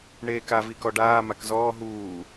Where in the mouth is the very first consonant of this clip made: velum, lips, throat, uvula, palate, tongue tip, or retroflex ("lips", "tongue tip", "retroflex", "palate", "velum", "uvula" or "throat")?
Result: retroflex